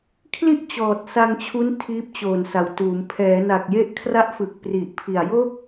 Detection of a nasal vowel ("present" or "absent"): absent